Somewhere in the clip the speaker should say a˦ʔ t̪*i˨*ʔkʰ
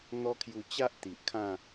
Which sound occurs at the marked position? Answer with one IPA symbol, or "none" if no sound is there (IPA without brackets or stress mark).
i˨